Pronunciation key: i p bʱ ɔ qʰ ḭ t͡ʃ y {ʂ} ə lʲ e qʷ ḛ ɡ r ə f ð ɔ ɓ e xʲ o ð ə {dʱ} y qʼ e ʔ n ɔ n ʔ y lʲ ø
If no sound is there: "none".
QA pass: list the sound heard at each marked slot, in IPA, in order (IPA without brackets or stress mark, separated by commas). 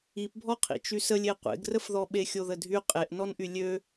s, dʱ